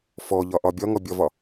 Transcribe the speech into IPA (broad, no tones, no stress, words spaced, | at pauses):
fɔʎɒʔɒ bʲɒŋɔbʲɒvɒ